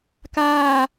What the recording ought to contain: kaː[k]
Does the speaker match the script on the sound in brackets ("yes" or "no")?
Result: no